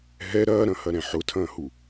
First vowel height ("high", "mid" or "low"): mid